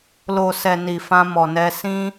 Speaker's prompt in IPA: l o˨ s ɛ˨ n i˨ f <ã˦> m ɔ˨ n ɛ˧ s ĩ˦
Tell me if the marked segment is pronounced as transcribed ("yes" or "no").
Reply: no